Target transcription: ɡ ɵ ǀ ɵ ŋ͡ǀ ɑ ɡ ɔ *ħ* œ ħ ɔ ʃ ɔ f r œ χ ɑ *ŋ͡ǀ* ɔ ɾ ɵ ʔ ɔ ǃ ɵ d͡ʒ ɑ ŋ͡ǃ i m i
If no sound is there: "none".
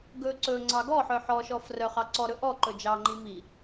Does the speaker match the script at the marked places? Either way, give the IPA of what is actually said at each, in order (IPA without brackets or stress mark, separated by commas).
ħ, ǀ